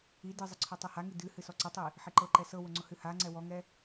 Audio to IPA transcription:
i d ɨ zˤ ɪ ǀʰ ɔ tˤ o h a ŋ i d ɨ h ɨ s ɔ ǀ ə tˤ i | ħ ɪ ǃ ɤ ǃ ɛ s ɤ w ʊ ŋ͡ǀ ʊ h ɨ h a ŋ͡ǀ ɛ w ɔ ŋ ɛ

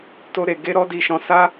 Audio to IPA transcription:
t o˦ ɾ e˧ ɡ e˦ ɾ ɔ˦ d i˧ ʃ ɔ̃˧ s a˦

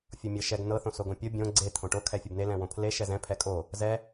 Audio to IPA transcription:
fʲ o mʲ ɤ ʃ ɛ ɡ n ɤ θ õ s o ɡ õ pʲ o bʲ õ ɡ͡ǀ e t̪ʰ õ ʈ o kʰ ɛ fʲ o b n e l ɛ̃ w õ pʰ l e ʃ ɛ z ɛ̃ pʰ ɛ kʼ o | z ɛ

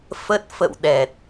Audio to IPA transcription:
f ə˦˥ t̚ f ə̰˧˨ w ɗ ɛ˨˩ t̚

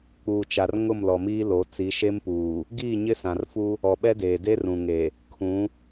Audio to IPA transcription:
k͡p uː˨ t͡ʃ a˨ r ŋ ʊ˦˨ m l ɔ˨ m iː˦ l o˨˦ t͡s i˨˦ ʃ e˦ m p uː˨ | ɡ iː˦˨ ɲ ɪ˦ s ã˨ r f u˦ | ɔ˨ ɓ ɛ˦ d eː˨ d e˦ r ũ˨ ŋ e˨ | kʰ ũ˨˦

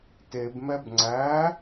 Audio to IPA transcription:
t e b m ɛ b ŋ͡ǀ æ

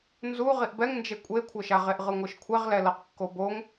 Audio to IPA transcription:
n z u ʁ i ʔ b ɛ ŋ n d͡ʒ e kʷʼ e kʷʰ ɤ ʃ a ʁ e ʔ ʁ ɯ ŋʷ ɯ ʃ kʷʰ ɛ ʁ l ɛ l ɤ q kː o b o ŋ

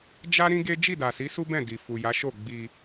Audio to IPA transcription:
d͡ʒ a˦ ɾ ĩ˦ ɡ e˦ d͡ʒ i˦˨ d a˨ s i˨˦ s u˦ b ɛ̃˦˨ d i˨ f u˨ j a˨˦ ʃ o˦˨ ɡ͡b i˧

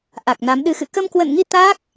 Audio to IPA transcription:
ʔ a˨˩ k̚ n a˨˦ m ɗ ɨ˨˦ x ɨ̰˧˨ k ə˧ m k w ə̰˧˨ n ŋ i˧ t̪ aː˦˥ k̚

